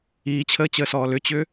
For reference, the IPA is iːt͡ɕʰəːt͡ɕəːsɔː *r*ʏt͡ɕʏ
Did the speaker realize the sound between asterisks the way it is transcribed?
no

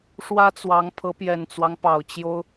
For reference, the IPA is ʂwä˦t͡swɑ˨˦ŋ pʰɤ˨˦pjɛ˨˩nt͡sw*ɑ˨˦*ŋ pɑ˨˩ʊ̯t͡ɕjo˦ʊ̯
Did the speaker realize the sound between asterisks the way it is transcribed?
no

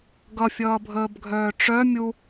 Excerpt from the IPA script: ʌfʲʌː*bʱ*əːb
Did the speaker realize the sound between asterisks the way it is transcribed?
yes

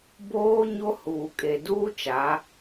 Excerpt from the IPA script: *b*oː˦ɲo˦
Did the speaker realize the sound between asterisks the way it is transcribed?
yes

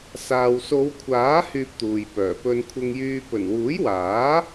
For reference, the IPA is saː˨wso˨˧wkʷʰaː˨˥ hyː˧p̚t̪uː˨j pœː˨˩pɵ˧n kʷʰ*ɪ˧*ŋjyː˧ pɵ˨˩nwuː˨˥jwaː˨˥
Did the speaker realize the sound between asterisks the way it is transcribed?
yes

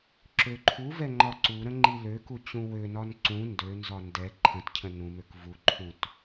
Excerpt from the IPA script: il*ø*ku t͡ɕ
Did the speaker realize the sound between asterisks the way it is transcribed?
yes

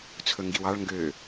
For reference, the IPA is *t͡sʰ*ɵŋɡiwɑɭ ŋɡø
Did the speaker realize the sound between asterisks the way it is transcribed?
yes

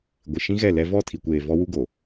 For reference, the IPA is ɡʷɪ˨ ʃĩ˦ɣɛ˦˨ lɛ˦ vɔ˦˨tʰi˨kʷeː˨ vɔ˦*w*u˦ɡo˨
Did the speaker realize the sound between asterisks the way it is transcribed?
yes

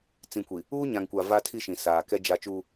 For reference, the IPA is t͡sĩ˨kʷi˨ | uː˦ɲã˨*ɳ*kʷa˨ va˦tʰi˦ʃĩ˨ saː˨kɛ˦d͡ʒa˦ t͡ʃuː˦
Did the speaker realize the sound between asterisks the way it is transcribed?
no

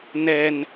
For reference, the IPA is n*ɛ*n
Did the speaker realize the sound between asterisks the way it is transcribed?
yes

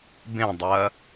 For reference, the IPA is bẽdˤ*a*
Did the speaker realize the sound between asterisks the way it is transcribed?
no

